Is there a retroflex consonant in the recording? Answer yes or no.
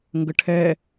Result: yes